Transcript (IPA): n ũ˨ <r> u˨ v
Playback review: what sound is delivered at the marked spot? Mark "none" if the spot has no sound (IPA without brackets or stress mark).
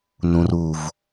r